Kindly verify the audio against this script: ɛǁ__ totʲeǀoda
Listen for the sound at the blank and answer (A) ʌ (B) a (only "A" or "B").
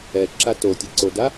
B